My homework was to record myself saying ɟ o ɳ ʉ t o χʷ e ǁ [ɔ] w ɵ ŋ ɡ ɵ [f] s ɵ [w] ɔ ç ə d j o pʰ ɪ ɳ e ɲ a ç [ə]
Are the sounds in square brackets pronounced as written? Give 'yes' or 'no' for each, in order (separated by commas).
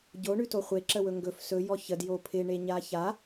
no, yes, no, no